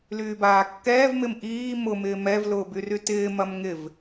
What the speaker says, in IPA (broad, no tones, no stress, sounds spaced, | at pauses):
l yː b aː kː ɛː v m ɪ m ʔ iː m ʊ m ɪː m ɛ v l ʊː b y r y t ɪː m ɐ m ŋ ɪ v